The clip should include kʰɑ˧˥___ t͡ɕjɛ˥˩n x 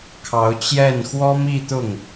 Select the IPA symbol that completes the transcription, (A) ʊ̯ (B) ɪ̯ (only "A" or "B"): A